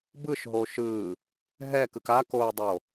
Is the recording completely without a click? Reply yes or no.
yes